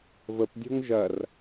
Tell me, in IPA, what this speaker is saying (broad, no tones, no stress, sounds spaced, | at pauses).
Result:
v ə p dʲ ɔ̤ ŋ ʒ ɐ r